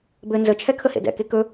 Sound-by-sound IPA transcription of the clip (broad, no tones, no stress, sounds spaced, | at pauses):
b ɘ n z ə t͡ʃʰ ɛ kʰ ə h ḛ d ɛ̰ k e k ɵ